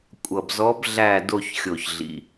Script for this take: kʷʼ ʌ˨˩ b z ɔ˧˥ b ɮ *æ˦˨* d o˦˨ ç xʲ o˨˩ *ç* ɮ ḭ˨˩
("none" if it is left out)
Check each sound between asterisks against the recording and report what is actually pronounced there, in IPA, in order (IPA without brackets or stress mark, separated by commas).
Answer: æ˦˨, ç